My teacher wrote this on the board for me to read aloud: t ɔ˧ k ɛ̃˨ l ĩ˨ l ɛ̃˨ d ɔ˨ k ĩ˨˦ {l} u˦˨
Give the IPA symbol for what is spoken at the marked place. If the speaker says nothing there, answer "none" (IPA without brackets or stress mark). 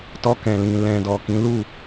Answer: l